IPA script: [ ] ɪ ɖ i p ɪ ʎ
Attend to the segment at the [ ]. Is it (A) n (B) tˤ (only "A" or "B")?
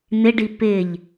A